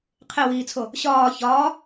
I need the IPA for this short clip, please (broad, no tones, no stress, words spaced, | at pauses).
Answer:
qʰewiːt͡sʰo | ɕɒː çɒː